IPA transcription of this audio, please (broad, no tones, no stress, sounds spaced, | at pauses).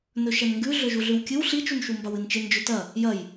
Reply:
n ɵ ʃ ɐ n ŋ ɡ ʉ ɮ ɵ ʒ u ɮ ʉ w kʲ ɨ w ɬ i t͡ʃ u n ʃ u m b a w ɨ n t͡ʃ ɨ n d͡ʒ ɵ t ɐ | j ɐ j